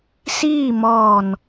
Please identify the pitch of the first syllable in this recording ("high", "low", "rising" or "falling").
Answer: falling